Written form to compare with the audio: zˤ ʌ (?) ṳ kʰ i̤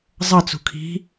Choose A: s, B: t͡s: B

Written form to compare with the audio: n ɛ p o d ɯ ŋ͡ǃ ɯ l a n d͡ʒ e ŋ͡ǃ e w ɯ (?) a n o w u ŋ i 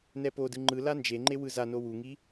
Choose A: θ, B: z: B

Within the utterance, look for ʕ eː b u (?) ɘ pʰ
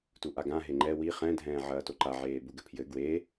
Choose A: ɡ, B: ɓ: A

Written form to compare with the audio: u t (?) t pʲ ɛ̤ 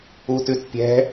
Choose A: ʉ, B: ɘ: A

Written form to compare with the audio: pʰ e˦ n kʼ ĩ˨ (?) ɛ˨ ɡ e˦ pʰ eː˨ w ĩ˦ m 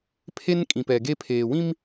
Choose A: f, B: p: B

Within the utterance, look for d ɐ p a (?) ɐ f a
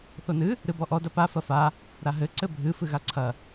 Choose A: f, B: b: A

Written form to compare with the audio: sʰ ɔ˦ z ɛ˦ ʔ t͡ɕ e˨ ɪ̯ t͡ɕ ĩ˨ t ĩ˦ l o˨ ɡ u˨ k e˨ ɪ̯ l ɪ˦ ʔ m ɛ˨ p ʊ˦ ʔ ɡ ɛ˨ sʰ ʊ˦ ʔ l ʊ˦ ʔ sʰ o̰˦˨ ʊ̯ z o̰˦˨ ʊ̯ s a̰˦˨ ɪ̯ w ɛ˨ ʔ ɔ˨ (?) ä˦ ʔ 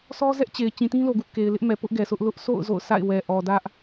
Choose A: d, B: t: A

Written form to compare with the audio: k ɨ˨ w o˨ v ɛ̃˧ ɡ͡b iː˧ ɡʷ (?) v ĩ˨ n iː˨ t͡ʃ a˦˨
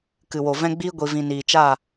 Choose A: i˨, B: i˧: A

